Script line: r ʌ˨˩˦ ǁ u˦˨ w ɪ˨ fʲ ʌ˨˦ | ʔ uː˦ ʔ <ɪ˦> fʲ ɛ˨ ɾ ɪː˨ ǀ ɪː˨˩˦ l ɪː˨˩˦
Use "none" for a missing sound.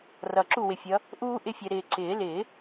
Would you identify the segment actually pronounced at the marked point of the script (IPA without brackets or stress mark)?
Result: ɪ˦